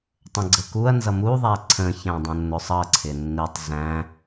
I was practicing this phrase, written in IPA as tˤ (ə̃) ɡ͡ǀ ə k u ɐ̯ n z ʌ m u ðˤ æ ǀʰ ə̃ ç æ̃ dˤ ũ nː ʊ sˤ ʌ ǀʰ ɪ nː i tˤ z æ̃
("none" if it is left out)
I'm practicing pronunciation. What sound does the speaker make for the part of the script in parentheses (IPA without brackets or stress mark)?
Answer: ə̃